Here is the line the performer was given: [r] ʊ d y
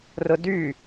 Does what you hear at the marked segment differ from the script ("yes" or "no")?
no